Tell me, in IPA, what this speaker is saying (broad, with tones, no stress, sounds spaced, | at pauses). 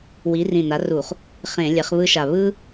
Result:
w i˨˥ r ĩ˧˩ n a˨˥ r u˧˩˧ χ | χ ẽ˧˩˧ lʲ ɛ˨˥ χ β ɯ˦ ʃ a˧˩ β ɯ˦